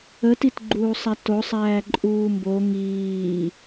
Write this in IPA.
ətitɡ͡ǃuːsˤæ tosˤæː ǃʼuːmbo ŋiː

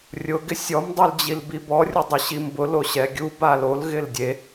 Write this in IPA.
rʲʊ ɡɪsʲɔm dˤuld͡ʑilbibɔ rʲudˤʊɕimbʊ loɕɛɡʲu balol ɣɪldʲe

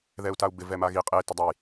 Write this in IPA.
ðɛu̯tau̯bɪ vɛmaɣi qʼe tɪdˤoj

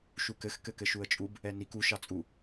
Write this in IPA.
ʃukɘx kɘkɘʃuə̯t͡ʃʼub | ɛnik u ʃɑt͡sʼu

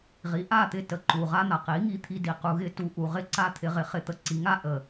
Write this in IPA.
ʁi˨˦ ʔa˦˨t̪ɪ˦˨ tə˧ǃu˨ ʁa˦n̪a˨ qi˨˦ŋi˧t̪ʰi˧di˨ qu˨ɣɪ˧tu˨ʔu˨ ʁɪ˦ǀa˦ t̪ʰɪ˧ʁɪ˧χɪ˧t̪ə˧ ǀi˨˦ŋa˧ ʔə˨

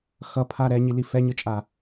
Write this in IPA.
xʌpʰa ɾɛɲili fɛɲɯt͡ʃʼa

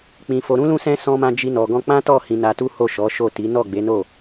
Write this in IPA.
k͡pĩ˧fo˧ɾũ˦lũ˦ sɛ̃˦ sɔ̃˦mã˦ d͡ʒi˦nɔ˧ɡɔ̃˦ k͡pã˦tɔ˦˨ hĩ˧na˧tu˦ho˦˨ ʃɔ˨˦ ʃo˦˨ ti˨˦ nɔ˦˨ɡ͡be˨˦no˦˨

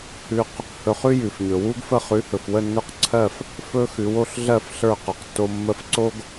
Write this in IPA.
hʉ˧q | hɵ˧χ ʉ˥jʉ˩fɲɵ˩ wu˥ɡfə˥˩ χʉ˩˥hɵ˩fwə˥˩nːɵ˥˩q ǀʰɜ˥˩f | fɵ˥xʉ˩˥w o˧ɬɮɜ˥˩f ɬə˞˥˩qɵ˩qtːo˧ mːə˧fǀo˥ɡ

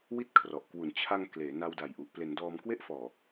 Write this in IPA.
wi˥˩t̚kʰrɔ˨˩ʔ kwu˩˦nt͡ɕʰa˧ŋ kleː˩˦na˧wda˨˩jʔu˨˩ʔ ple˩˦n dɔː˧mkwe˥˩ʔfɔː˨˩

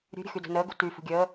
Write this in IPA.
ɾʲṳɾʲə̤ xydə̤ nəːɡṳ ty fṳɡʲəː

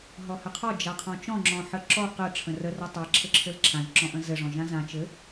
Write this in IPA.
ɦɔhɘqʰɔ d͡ʒaqʰɔ̃t͡ʃɔ̃ ŋ͡ǁɔ̃ħəǁɔ qə ʈ͡ʂʰə̃rə rɔtˤa ǁʰɘǁʰɘlǁʰãʒ ǁɔ̃ʔə̃zɘ ʐɔ̃ʒãzã t͡ʃɘ

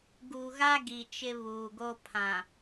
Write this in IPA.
ɡu˨ɣa˦ ɡi˨t͡ʃɪ˦βuː˨ɡo˦ pʰã˨

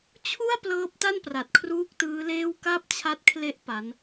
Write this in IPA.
t͡ɕʰu˥˩a̯ plɤː˦˥p̚ta˥˩npra˨˩t̚kʰruː˦˥k̚ tɯː˦˥leː˥˩w ka˥˩p̚t͡ɕʰa˦˥t̚kʰle˦˥ʔ pa˦˥n

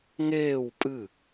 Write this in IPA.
ŋeːw pʼɨ

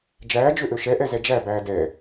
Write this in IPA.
d͡ʒæːd͡ʒøʔø ʃɛʔɛzɛ d͡ʒæbæː dɛː

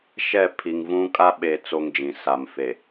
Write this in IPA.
ʃɛ˦˨pʰi˨ŋvũ˦ kʼa˦ɓe˨ t͡so˦ŋd͡ʒĩ˨ sa˨mfe˨

